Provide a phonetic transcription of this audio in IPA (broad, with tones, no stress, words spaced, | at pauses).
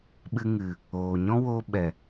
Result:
ɓɨ˧ŋɨ˨ | oː˨ ɲɔ̃˦wo˧ ɓɛ˨